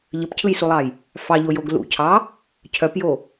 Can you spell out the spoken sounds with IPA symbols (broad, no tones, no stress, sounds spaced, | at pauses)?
ʎ ə p cʰ ɯ j s u lˠ ɑ j | f ɑ ʎ o j o ɡ l ṵ cʰ ɑ | cʰ œ p j o